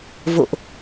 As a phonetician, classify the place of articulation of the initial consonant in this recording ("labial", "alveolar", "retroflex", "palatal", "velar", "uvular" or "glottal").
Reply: labial